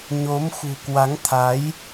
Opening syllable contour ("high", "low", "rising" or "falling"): rising